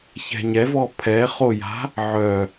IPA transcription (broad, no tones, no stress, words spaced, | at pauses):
çɛ̤ɲɛvɔ pʰɛ χoja̤ | ʕœ